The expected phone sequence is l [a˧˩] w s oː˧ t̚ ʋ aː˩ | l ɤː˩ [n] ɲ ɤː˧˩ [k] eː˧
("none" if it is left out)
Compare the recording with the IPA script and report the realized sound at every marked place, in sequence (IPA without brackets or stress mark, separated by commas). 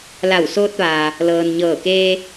a˧˩, n, k